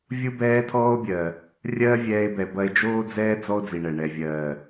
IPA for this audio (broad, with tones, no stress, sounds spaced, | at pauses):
vʲ u˦ b ɛː˦ tʰ ɔː˦ o̯ bʲ ɜ˨ | rʲ ɜː˦ vʲ ɛː˧ e̯ b ɛ˨ b ɐ˧ e̯ d͡ʒ oː˦ d͡z ɛː˦ d͡z ɔ˦ o̯ d͡z i˨ ɳ ɛ˨ ɳ ɛ˨ vʲ ɜː˨